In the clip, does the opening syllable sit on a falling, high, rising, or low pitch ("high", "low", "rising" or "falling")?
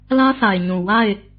high